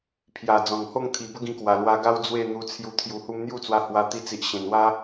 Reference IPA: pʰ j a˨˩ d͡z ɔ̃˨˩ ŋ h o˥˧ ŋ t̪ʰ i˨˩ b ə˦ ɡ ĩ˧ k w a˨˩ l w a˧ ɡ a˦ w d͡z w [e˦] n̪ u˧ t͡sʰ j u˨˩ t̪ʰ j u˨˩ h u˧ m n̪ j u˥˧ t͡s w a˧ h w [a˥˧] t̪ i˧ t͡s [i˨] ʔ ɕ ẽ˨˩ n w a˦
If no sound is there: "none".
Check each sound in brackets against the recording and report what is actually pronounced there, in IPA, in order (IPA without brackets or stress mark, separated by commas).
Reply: e˥˧, a˧, i˨